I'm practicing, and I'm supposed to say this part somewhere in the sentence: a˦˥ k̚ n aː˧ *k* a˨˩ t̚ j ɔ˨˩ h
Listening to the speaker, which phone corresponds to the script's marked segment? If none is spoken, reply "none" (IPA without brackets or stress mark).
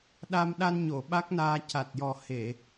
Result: c